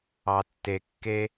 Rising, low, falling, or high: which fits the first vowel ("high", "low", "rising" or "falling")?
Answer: low